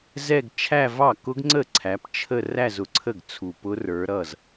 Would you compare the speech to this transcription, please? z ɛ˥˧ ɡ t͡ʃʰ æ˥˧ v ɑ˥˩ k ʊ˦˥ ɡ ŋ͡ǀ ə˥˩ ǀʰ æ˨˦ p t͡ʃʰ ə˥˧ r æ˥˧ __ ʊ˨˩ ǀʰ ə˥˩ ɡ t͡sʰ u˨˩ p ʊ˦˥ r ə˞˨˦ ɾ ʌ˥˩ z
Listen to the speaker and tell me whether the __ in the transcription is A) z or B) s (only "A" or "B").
A